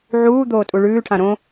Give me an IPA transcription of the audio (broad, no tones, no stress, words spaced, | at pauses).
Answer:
ʕuː d̪oːtʼuɭʉːʈʰã ɾõ